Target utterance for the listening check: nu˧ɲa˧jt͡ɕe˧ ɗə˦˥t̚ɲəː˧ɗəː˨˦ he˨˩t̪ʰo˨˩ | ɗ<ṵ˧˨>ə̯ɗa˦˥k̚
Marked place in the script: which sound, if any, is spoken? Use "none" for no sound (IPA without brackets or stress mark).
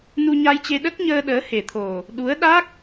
u˨˦